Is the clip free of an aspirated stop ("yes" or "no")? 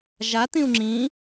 yes